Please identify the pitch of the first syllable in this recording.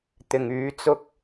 low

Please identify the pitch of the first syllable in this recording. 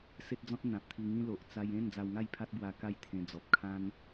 high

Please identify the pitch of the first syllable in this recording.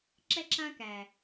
high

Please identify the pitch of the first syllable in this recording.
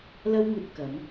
high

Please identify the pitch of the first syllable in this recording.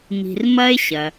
low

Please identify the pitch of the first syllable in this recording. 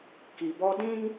low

